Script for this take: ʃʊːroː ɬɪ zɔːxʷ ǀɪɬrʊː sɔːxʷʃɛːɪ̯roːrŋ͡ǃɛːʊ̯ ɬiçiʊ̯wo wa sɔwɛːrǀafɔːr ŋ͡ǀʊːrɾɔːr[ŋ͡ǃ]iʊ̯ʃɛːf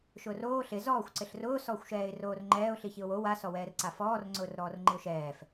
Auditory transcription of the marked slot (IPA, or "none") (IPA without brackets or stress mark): ŋ͡ǃ